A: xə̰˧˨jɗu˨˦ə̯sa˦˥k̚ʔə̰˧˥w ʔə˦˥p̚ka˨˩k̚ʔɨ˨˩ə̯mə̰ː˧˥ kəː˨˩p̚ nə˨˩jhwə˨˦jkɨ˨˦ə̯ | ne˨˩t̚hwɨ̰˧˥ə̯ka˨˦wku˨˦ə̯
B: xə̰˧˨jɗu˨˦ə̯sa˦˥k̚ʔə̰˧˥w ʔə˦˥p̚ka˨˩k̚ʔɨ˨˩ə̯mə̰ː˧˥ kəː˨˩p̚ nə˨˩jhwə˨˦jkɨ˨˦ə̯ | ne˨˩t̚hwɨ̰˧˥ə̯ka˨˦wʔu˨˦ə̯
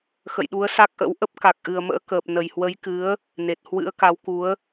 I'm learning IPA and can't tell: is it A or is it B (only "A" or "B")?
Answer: A